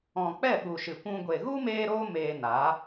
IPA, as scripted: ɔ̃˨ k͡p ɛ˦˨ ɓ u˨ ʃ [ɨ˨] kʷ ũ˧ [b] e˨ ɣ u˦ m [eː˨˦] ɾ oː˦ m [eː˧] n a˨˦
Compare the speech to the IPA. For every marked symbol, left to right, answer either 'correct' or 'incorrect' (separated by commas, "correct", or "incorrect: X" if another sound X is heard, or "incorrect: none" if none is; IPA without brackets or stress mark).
correct, incorrect: ɡʷ, incorrect: eː˦, correct